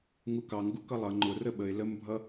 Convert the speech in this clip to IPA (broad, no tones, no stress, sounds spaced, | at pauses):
ŋ u k ɑ ŋ ɡ u k ʌ lˠ ʌ ŋ͡ǃ ʊ r ə ɓ ə ɪ̯ l ə m bʱ ʌ